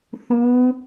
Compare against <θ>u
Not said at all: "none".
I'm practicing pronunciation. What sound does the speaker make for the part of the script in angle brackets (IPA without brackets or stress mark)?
θ